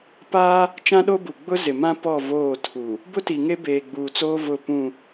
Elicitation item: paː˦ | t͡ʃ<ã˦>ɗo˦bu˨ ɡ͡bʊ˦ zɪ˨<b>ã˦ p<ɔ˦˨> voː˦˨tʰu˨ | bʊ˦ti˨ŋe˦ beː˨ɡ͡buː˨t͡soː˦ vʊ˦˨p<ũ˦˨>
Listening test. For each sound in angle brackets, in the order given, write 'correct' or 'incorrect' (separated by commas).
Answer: correct, incorrect, correct, correct